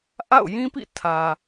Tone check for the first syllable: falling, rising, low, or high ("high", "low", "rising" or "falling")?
falling